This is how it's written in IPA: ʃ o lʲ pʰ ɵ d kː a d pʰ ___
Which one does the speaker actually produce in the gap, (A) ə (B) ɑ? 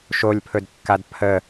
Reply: A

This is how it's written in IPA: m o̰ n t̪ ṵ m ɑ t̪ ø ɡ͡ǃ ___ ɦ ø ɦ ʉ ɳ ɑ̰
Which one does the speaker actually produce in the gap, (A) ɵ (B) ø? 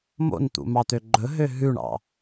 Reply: A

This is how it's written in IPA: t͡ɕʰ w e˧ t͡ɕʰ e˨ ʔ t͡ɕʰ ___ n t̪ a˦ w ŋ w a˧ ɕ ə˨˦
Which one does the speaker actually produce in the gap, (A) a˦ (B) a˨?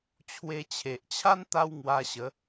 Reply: A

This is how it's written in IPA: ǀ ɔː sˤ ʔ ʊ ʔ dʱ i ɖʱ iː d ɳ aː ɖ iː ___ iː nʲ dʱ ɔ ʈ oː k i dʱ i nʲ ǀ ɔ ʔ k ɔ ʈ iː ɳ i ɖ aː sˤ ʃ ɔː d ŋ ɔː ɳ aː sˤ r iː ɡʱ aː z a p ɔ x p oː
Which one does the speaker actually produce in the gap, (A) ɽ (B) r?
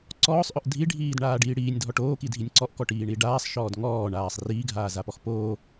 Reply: A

